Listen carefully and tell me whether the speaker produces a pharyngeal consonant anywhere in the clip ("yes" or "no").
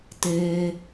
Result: no